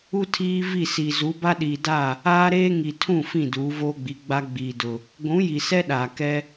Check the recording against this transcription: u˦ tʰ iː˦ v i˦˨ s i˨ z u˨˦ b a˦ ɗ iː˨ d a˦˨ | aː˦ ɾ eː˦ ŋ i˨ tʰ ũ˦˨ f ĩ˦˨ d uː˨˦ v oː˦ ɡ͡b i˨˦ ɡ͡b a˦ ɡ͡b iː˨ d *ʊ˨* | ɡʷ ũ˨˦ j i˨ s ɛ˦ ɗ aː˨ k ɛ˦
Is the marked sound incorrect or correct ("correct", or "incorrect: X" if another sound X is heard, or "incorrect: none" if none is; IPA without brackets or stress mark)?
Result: correct